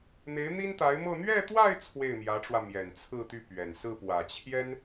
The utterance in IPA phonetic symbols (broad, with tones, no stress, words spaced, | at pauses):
n̪e˧˥ɪ̯n̪i˥nt̪a˧˥ɪ̯mɤ˥˧ n̪ɥɛ˥˧t̪wa˥˧ɪ̯ t͡sʰwe˥˩ɪ̯mjä˧˥ʈ͡ʂwä˧ mjɛ˨˩nt͡sʰɹ̩˥˧t̪y˥˩pɥɛ˨˩n sɹ̩˥˩pwä˨˩t͡ɕʰjɛ˥n